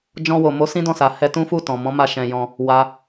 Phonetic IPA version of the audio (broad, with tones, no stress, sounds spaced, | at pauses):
d͡ʒ ɔ̃˧ w o˨ m o˨˦ s ĩ˦ d ɔ̃˦˨ s a˨ h ɛ˧ t ũ˦ f u˦˨ t ɔ̃˨ m ɔ̃˨˦ m a˧ ʃ ɛ̃˨ j ɔ̃˧ | w a˧